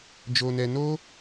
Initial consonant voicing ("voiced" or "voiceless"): voiced